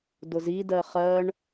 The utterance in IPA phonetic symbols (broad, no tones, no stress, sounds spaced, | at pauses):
d ʊ z i d ɜ χ ɜ ɳ